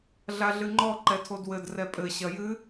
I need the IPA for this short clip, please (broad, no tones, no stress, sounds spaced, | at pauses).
ɮ a ɮ ɨ ŋ͡ǃ ɔ ǃ ɛ tʰ o d w ɘ d r ɛ pʼ ɘ ɕ ɐ j ɨ